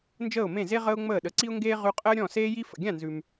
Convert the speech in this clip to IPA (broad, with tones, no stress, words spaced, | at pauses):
nd͡ʒəː˥˩ʊ̯mẽ˥˩ze˥ ʁəː˥ʊ̯ŋ͡məː˥˩ɗə˩˥ ǀi˥ʊ̯ŋɡeː˥ ʁʉ˧qʼəː˥ ɾʲɔ̃˥˩seː˥ji˥ fə̰˩ɡʲã˥˩nzʉ˩m